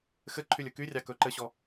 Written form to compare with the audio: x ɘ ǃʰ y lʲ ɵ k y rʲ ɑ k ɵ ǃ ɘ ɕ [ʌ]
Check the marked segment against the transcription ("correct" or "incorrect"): incorrect